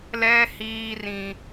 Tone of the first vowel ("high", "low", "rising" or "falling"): high